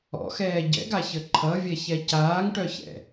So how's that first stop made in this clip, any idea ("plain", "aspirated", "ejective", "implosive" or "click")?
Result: plain